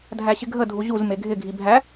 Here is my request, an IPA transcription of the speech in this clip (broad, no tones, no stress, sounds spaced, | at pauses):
dʱ æ ɕ ɪ ɡʱ ə dʱ u ʑ u z m e ɡʱ ɪ ɡʱ i bʱ æ